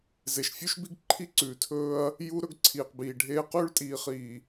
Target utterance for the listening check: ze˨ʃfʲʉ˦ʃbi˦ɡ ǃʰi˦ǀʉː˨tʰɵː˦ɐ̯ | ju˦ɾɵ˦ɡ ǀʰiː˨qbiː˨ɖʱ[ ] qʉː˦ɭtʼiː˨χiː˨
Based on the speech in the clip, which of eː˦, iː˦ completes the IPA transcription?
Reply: eː˦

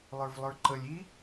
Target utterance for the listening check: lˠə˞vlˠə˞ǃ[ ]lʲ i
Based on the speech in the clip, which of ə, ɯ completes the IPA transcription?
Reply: ə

